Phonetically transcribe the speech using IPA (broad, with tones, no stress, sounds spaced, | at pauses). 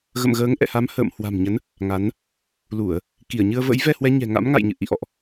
ɣ ə̰˧˨ m ɣ əː˨˦ ŋ ʔ ɛ̰˧˨ h a˨˦ m h ə̰ː˧˨ m h w a̤˨˩ m ɲ ə˨˦ n | ŋ a˨˦ n | l u˧˩˨ ə̯ | k i˧˩ ə̯ ɲ ɨ˧ ə̯ v ə̰˧˥ j v ɛ˧ h w ɛ˨˦ ɲ ɛ̤˨˩ ŋ a̰˧˥ m ŋ a̰˧˨ j ɲ ɨ̰˧˨ ʔ ḭ˧˨ ʔ ɔ̰˧˨ ʔ